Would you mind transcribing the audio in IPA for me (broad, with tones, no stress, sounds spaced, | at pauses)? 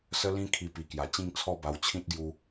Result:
s ə˦ l ĩ˦ kʰ i˧ p i˨˩ k j a˨˩ t͡ɕ ĩ˥˧ ŋ t͡sʰ ɔ˥˧ b a˧ w t͡ɕʰ ĩ˦ t̚ ɡ j u˧